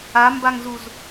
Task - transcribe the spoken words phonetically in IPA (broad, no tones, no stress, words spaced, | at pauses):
ambaŋzuz